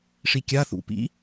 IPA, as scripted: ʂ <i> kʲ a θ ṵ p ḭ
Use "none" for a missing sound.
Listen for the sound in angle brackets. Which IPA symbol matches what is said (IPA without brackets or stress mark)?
i